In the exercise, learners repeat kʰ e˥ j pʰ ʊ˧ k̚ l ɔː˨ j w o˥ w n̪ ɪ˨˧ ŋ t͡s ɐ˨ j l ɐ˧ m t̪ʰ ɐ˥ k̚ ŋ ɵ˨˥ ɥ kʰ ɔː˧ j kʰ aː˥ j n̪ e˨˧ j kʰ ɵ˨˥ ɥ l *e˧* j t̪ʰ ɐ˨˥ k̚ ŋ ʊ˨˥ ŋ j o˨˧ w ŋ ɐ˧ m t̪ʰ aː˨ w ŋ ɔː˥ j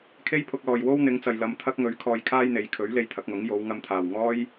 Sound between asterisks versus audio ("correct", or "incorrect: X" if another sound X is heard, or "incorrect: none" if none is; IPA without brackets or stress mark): correct